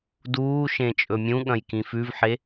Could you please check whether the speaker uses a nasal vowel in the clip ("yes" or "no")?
yes